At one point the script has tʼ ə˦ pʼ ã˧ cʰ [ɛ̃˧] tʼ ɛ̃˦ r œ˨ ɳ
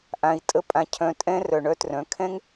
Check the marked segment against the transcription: incorrect: œ̃˧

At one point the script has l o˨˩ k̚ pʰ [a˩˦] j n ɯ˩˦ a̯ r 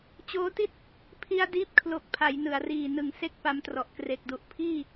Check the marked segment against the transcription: correct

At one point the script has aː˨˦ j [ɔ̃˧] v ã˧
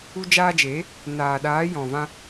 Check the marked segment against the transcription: incorrect: ɔ̃˨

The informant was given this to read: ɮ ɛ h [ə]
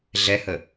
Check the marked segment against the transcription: correct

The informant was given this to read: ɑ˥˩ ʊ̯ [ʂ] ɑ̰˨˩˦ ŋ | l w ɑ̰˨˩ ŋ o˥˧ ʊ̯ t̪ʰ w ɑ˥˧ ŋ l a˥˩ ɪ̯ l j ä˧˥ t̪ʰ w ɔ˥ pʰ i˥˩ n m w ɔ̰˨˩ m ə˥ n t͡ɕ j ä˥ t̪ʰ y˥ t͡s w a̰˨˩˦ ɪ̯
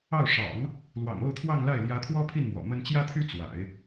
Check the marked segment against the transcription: correct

